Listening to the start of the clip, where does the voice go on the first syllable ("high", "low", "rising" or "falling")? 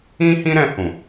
high